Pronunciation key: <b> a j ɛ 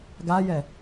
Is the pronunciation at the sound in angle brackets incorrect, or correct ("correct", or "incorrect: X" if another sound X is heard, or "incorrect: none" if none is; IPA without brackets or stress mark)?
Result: incorrect: ɡ